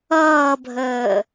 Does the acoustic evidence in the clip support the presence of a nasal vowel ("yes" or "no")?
no